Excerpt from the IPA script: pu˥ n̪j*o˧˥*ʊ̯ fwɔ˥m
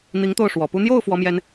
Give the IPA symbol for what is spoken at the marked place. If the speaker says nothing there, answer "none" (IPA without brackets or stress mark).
o˥˩